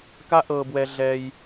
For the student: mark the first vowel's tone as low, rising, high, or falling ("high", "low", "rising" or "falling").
high